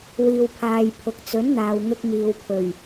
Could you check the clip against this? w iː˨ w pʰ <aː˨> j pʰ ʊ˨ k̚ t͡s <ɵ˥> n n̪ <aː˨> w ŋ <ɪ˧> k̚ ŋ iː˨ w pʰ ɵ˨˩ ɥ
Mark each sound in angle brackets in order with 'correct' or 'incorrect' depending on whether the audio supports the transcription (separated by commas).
correct, incorrect, correct, correct